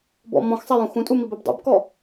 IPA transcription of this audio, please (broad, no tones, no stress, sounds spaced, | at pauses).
b ɔ̰ m ɔ̃ x sˤ ɛ j ũ x ũ tʼ u m i b e b dˤ ḛ b k ɔ